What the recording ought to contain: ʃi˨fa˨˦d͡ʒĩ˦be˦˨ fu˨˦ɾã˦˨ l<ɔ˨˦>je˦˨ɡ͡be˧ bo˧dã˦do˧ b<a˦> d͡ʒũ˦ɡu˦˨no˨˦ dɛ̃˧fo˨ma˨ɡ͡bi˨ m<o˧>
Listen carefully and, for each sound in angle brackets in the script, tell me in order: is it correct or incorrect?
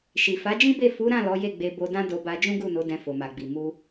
correct, incorrect: a˧, incorrect: u˧

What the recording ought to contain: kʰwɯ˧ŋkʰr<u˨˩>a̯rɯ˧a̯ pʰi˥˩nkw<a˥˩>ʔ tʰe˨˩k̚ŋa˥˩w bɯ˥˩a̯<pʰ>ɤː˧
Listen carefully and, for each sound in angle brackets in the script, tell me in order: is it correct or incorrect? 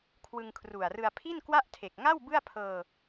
correct, correct, correct

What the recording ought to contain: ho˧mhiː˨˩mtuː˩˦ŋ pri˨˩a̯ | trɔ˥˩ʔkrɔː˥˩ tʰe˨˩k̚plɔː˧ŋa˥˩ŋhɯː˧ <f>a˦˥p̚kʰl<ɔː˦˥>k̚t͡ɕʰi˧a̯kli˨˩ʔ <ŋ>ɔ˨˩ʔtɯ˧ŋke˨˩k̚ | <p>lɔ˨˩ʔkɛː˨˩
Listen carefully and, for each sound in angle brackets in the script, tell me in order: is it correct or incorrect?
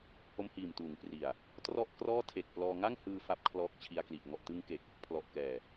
correct, correct, correct, incorrect: pʰ

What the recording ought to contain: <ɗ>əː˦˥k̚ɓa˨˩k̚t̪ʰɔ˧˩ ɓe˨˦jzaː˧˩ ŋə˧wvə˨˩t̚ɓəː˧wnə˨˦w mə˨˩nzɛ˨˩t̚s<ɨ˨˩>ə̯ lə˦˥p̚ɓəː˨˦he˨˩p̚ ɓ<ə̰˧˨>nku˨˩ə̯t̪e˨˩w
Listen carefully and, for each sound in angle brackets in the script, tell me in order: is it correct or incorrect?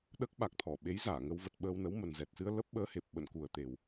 correct, incorrect: ɨ˧, correct

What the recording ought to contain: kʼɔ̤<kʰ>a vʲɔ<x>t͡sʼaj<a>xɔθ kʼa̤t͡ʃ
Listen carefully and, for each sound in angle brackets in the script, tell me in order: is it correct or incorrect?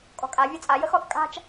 incorrect: kʼ, incorrect: none, incorrect: ə

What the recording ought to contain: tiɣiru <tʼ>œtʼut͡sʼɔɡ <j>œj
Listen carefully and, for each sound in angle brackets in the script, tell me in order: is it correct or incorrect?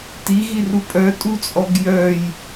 incorrect: pʼ, correct

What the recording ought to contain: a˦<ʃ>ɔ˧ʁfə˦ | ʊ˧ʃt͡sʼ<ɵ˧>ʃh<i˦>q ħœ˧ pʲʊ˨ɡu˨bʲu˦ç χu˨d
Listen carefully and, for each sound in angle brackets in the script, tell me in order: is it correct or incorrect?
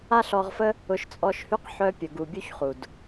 incorrect: ɬ, incorrect: ɔ˧, incorrect: y˦

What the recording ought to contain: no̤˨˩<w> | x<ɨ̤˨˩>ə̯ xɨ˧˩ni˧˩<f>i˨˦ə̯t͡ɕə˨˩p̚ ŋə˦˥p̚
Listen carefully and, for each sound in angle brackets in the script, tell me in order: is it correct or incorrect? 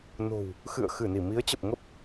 correct, incorrect: ɨ̰˧˨, incorrect: m

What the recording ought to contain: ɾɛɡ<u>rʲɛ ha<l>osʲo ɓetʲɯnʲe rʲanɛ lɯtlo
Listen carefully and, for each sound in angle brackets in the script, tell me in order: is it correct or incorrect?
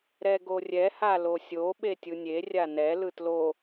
incorrect: o, correct

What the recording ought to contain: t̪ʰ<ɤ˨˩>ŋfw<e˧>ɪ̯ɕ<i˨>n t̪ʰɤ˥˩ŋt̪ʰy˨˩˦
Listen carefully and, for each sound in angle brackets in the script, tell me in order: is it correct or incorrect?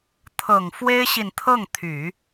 correct, incorrect: e˥, correct

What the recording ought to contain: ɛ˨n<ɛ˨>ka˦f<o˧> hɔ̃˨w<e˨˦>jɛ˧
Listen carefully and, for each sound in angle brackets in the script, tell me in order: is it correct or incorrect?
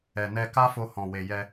incorrect: ɛ˧, correct, incorrect: e˨

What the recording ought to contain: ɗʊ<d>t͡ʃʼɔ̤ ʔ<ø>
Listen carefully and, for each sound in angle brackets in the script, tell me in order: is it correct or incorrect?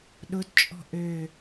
correct, correct

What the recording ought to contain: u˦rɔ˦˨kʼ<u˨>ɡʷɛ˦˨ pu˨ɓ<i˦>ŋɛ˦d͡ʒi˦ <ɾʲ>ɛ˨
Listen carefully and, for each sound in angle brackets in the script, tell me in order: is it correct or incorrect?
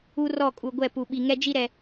correct, incorrect: i˨, incorrect: ɾ

